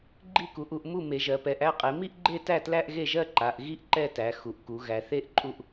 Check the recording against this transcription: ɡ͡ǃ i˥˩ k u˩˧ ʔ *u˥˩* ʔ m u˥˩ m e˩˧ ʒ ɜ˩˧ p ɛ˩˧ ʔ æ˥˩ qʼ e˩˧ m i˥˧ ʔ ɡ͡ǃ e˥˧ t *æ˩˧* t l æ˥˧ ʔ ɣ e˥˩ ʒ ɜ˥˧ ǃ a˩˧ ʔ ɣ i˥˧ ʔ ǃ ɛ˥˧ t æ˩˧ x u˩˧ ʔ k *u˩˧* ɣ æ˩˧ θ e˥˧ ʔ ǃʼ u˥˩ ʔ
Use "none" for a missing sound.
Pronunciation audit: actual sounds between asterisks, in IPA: u˥˩, æ˥˩, u˩˧

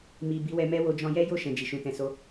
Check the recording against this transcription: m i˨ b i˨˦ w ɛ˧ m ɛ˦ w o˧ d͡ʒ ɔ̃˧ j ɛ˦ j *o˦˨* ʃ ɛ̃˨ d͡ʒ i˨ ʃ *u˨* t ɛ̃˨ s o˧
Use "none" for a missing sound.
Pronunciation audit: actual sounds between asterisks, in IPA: o˦˨, ũ˨

